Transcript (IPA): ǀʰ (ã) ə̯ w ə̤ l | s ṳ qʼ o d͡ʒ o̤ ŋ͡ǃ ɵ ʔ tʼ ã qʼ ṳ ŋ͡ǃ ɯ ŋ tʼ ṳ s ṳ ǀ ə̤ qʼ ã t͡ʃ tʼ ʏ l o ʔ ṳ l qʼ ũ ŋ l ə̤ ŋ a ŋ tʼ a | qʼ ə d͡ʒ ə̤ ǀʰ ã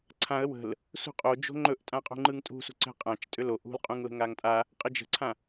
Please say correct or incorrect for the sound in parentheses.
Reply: correct